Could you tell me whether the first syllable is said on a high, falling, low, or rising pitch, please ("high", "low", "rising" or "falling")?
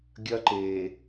high